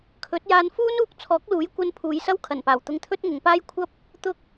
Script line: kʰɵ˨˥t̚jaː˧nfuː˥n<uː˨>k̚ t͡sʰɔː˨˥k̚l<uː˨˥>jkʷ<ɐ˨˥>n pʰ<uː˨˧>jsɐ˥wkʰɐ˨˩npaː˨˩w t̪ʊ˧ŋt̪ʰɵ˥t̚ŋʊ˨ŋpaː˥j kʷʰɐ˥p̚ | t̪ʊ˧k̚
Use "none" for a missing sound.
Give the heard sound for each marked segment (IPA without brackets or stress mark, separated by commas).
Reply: uː˧, uː˨˥, ɐ˧, uː˨˧